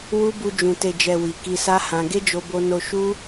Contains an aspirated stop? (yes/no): no